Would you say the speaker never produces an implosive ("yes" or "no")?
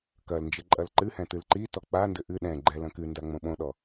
no